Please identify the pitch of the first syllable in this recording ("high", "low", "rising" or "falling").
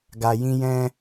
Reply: high